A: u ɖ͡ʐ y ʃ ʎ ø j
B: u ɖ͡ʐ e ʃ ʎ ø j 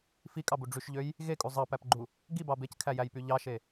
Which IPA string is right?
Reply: A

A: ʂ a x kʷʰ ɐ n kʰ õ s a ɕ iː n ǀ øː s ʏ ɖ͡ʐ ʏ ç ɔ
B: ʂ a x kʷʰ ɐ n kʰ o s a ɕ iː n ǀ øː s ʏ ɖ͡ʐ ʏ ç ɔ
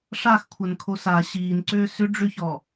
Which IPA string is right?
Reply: B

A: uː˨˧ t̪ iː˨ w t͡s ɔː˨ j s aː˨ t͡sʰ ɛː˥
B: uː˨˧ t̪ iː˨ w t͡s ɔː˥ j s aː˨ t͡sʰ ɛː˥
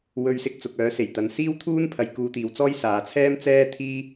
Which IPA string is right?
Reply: B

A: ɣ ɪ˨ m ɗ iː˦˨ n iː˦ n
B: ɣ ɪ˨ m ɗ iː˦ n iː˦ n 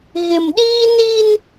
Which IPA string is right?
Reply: B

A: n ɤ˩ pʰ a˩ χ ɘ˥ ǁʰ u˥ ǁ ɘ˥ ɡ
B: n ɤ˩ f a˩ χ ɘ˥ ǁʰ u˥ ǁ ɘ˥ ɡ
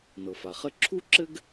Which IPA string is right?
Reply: B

